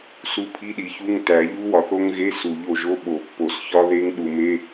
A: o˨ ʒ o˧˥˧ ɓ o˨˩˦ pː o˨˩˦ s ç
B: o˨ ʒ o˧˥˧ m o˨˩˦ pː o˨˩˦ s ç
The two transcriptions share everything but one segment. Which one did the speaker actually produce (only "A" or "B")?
A